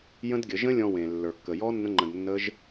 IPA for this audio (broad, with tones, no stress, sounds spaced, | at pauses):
j ə̃˦ d ɡʲ ə˨˦ ʒ ə̃˦ lʲ ɔ̃˧ w ẽ˨ lː ə˞˨ kː ə˨ j ɔ˦ nː ə̃˦ ŋ͡ǃ ə̃˧ d nː ə˦ ʒ